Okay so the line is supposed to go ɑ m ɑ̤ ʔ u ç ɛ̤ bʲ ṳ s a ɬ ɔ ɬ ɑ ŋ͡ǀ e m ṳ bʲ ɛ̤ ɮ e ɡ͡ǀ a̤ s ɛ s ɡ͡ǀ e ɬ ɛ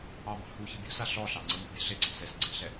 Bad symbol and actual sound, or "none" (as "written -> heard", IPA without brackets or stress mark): ʔ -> h